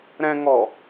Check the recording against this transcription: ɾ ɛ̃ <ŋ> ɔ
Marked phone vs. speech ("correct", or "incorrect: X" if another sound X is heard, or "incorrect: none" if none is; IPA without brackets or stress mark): correct